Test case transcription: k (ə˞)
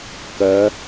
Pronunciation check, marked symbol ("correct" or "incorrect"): incorrect